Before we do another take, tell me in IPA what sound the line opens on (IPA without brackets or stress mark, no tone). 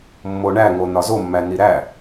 mː